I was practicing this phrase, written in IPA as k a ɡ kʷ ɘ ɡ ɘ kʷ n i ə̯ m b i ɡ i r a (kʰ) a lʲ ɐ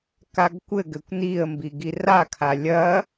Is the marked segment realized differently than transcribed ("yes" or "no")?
no